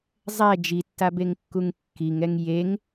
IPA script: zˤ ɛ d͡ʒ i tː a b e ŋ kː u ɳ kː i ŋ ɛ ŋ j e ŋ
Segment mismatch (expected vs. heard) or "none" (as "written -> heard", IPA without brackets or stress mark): ɳ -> ŋ